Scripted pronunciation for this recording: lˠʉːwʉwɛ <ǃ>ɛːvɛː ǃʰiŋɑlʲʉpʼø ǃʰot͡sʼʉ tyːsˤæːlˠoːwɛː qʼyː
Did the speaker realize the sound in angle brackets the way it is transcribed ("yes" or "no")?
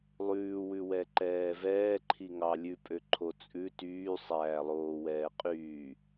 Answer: yes